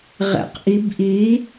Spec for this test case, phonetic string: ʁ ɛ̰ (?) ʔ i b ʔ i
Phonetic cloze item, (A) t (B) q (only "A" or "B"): B